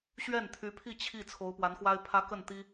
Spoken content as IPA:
ɕ ɥ ɛ˥˩ n t̪ʰ y˧˥ pʰ i˥˧ t͡ɕʰ i˥˩ t͡sʰ o˧˥ ʊ̯ p w a˧˥ n x w a˥ ɪ̯ pʰ ä˥ k ə˥˩ n t̪ i˥

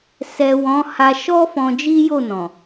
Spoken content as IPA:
s ɛ˨ w ɔ̃˨˦ h a˧ ʃ ɔ˦ f ɔ̃˧ d͡ʒ i˦ j o˦˨ n ɔ̃˨

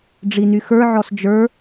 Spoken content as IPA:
ɖ͡ʐ i n y x ə˞ ʕ ɔ s d͡ʒ ə˞

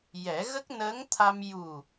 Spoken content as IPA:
j ɛ˨˩˦ ɣ ə˦˥ k̚ n əː˧˥ ŋ t̪ʰ a˧ m j u˨˩

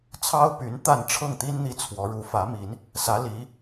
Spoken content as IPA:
t͡sʰ ɑ˥ ʊ̯ p y˧˥ n t̪ a˥˧ n ʈ͡ʂʰ ɤ˥˩ ŋ t̪ i˥ n n̪ i˥˩ t͡sʰ w ɔ˧˥ ɻ u˧˥ f ä˧˥ m i˧˥ n | s ä˧˥ l i˧˥

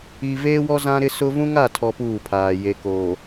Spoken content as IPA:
i˨ v eː˦ w ɔ˦ z ã˦ ɾ ɪ˦ s ʊ˦ v ũ˦ ŋ a˦˨ tʰ ɔ˦ p uː˦˨ pʰ aː˨ j e˨ k oː˨

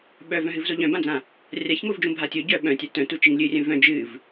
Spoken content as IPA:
ɓ œ v œ̃ ɦ ɨ v z o ʎ œ̃ b ã d͡z ã | rʲ a ç ŋ o v d͡ʒ ũ bʱ a tʲ o ɟ œ ɓ œ̃ tʲ a t œ̃ t u t͡ʃ i ŋ lʲ ɨ rʲ œ̃ v œ̃ d͡ʒ ɨ v

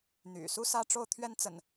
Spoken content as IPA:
n̪ y̰˨˩ s u˦ s ä˦ ʈ͡ʂ o˥˨ ʊ̯ t̪ʰ ɥ ɛ˦ n t͡s ə̰˨˩ n

